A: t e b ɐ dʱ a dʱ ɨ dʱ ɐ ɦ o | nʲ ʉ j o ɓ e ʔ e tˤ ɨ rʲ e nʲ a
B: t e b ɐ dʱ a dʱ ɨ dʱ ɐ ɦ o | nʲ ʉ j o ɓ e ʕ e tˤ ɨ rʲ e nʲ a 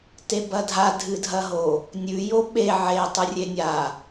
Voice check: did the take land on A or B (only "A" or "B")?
B